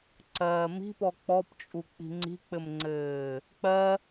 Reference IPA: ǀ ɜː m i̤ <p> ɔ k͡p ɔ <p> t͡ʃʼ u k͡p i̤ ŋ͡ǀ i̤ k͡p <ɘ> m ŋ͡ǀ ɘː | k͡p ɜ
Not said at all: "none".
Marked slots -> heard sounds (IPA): p, p, ɘ

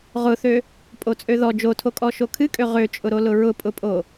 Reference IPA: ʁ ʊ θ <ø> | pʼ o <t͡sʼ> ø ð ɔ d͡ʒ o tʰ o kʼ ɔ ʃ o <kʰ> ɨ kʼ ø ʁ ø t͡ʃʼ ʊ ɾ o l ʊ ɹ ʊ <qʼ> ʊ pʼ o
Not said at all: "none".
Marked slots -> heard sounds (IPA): ø, t͡sʼ, kʰ, pʼ

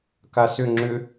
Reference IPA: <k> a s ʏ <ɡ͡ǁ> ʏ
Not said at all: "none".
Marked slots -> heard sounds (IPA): k, ŋ͡ǁ

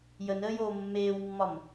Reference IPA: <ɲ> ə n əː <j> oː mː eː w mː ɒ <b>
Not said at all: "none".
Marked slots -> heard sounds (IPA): j, j, m

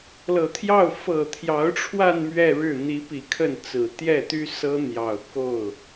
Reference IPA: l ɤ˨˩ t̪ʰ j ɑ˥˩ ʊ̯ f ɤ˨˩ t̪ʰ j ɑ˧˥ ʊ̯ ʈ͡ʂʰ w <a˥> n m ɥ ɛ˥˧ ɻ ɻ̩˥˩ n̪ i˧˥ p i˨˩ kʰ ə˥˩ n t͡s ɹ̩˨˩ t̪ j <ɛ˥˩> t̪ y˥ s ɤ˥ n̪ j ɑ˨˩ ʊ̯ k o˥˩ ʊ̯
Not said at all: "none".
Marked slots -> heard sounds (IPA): a˥˧, ɛ˥˩

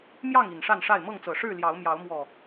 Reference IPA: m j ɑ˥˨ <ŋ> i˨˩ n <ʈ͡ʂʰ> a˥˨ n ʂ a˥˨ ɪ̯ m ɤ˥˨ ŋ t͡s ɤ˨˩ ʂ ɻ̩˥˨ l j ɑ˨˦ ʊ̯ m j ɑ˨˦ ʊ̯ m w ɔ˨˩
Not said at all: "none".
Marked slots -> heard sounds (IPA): ŋ, ʂ

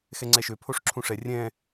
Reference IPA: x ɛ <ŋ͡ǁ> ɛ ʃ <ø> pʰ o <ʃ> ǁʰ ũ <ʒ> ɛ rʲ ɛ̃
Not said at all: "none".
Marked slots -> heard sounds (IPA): ŋ͡ǀ, ø, ʂ, ʂ

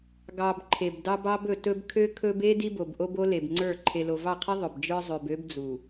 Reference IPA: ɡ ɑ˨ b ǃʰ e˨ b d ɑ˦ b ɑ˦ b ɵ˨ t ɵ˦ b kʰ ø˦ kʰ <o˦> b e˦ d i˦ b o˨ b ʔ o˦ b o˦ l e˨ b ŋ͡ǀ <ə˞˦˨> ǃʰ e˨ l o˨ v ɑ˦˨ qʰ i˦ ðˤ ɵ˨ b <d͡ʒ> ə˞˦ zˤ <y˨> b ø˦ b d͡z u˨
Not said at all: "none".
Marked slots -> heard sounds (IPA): ɵ˦, ə˞˦˨, d͡ʒ, ø˨

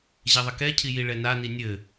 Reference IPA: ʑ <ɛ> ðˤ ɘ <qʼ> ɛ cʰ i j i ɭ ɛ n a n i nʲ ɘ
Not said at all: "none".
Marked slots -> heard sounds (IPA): ɛ, k

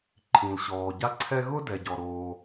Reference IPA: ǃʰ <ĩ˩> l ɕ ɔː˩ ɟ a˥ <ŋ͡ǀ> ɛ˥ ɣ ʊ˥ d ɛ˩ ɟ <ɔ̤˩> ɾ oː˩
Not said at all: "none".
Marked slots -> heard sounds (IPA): ĩ˩, ǀʰ, ɔ˩

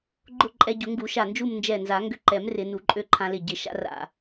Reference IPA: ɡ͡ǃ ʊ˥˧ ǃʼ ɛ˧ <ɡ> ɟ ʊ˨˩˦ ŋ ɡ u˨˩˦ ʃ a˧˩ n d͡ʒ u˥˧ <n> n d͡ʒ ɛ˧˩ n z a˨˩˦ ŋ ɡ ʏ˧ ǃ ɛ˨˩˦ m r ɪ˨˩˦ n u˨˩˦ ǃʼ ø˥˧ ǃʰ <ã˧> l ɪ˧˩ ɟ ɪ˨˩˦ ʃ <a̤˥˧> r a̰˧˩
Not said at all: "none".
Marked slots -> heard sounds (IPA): none, m, ã˧, a̰˥˧

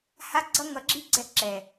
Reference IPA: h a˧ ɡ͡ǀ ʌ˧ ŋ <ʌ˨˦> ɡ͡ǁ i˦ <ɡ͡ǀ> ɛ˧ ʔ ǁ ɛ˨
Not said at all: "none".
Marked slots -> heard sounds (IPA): ʌ˨˦, ɡ͡ǀ

